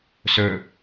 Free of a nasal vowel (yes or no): yes